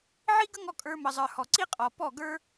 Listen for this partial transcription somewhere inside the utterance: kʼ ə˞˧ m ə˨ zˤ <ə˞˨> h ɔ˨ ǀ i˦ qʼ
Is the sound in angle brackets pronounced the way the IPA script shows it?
yes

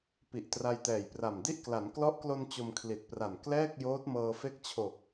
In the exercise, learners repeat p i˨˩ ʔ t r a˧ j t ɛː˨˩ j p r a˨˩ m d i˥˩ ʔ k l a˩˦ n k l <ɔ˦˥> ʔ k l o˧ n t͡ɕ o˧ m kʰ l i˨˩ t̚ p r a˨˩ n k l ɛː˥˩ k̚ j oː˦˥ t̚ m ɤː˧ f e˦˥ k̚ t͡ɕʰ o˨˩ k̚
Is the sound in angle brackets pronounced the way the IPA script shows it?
yes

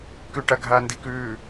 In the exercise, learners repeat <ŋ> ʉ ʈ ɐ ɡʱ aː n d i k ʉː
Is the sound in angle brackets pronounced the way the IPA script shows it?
no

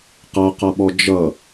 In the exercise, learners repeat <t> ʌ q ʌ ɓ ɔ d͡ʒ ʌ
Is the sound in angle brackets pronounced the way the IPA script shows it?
no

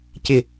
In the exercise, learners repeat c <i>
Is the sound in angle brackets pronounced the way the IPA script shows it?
no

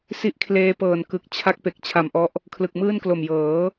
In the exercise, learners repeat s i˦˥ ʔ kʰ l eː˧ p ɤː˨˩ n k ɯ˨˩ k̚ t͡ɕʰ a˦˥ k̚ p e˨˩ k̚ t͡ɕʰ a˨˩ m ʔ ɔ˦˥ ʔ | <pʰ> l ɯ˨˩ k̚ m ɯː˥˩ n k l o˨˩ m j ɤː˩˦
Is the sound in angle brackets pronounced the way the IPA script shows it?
no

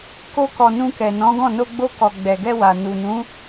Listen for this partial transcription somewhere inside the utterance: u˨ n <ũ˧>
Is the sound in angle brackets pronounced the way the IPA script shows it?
no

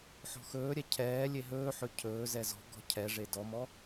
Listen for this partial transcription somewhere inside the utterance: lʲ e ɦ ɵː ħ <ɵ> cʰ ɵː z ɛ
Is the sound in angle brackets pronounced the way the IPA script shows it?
yes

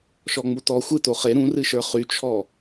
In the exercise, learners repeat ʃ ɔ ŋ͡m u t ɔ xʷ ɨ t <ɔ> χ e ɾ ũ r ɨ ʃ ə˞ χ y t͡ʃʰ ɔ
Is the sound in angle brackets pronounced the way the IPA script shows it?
no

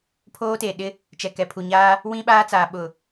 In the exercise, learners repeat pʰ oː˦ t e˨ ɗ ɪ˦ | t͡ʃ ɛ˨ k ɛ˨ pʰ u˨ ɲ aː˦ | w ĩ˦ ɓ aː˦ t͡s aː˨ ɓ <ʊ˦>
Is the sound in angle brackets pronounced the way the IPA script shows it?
no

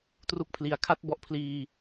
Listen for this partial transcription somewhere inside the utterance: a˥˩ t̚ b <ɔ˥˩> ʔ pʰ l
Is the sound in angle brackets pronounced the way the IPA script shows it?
no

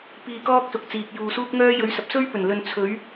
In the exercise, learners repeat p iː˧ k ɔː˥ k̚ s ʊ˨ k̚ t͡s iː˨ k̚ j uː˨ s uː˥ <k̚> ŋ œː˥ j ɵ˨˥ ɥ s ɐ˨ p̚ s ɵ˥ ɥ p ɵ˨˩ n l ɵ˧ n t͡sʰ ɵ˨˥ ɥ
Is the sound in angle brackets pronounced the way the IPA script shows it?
yes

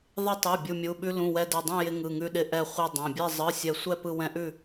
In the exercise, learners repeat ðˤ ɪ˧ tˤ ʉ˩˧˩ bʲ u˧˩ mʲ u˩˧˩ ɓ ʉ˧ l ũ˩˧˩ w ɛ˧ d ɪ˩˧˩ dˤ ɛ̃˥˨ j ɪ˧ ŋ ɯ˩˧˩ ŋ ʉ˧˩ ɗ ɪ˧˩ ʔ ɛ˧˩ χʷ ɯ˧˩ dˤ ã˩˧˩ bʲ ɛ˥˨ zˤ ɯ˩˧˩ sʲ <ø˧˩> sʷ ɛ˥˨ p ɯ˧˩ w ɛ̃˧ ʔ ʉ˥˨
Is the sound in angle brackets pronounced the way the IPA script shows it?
no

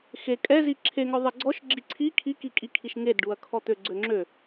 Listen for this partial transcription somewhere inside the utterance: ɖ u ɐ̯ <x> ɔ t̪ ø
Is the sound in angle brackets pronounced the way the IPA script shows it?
no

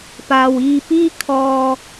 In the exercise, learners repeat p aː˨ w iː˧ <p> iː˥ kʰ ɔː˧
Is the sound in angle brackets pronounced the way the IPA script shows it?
yes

